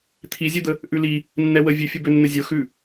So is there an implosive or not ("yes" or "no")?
no